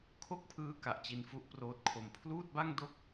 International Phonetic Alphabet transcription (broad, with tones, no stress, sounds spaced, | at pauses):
kʰ o˥˩ k̚ pʰ ɯː˦˥ k a˨˩ ʔ t͡ɕ i˧ n f u˦˥ ʔ p r oː˦˥ t̚ kʰ o˧ m pʰ l uː˥˩ t̚ b a˥˩ ŋ d o˦˥ k̚